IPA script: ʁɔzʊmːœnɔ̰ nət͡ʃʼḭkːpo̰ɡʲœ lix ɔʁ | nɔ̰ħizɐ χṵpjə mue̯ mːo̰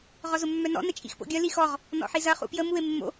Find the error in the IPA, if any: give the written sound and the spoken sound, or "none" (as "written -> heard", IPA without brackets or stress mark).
kː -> x